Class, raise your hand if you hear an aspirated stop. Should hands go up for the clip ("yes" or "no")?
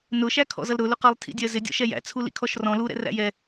yes